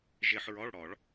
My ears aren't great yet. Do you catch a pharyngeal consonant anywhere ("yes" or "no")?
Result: yes